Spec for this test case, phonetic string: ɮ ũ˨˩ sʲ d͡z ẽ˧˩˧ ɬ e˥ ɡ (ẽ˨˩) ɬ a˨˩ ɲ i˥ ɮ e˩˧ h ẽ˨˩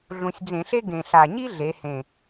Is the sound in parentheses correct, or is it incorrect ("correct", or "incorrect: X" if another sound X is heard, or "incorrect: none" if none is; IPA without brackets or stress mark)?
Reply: correct